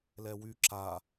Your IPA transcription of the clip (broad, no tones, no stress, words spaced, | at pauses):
lɛwy ǁa